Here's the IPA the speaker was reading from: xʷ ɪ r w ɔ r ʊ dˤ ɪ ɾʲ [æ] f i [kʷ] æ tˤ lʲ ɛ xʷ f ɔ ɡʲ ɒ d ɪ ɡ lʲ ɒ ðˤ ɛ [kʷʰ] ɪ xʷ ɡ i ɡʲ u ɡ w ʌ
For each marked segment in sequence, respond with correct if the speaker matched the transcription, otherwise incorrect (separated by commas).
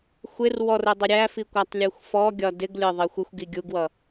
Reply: correct, correct, incorrect